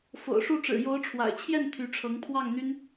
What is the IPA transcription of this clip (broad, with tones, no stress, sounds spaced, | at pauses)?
f o̰˨˩ ʊ̯ ʂ u˥˩ ʈ͡ʂ ɻ̩˨˩ j o˧˥ ʊ̯ ʈ͡ʂʰ w a̰˨˩ ɪ̯ t͡ɕʰ j ɛ˥˩ n t̪ʰ y˧˥ ʈ͡ʂʰ ɤ˧˥ ŋ pʰ w ɑ˥˩ ŋ n̪ y˥ n